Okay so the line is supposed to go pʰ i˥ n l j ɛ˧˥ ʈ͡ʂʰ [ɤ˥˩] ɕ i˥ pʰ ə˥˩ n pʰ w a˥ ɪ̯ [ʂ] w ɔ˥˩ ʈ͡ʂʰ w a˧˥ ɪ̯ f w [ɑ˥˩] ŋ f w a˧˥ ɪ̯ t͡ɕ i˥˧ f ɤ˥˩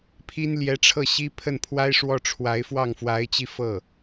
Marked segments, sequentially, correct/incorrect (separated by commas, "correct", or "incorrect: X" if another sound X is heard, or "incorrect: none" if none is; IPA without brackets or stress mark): correct, correct, correct